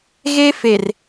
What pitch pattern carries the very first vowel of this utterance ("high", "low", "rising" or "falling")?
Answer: high